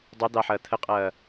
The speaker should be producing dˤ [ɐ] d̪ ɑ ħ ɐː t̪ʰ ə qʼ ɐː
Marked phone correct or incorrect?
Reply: correct